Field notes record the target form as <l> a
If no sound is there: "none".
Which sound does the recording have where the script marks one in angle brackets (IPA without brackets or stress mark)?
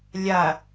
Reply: lʲ